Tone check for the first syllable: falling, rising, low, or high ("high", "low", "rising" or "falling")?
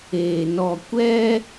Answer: low